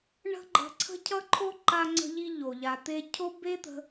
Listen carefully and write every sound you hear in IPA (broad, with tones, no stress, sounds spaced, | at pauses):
ɳ ə̤˥ ɡ͡ǃ ə̤˧ ǀʰ ə̤˥ cʰ ʌ˥ ǃʰ o˥ ǃ a˧ ŋ͡ǀ ə̤˧ ʎ i˧ ʎ o˩ ʎ a˩ t̪ e˧ cʰ o˥ b e˥ t̪ ə̤˧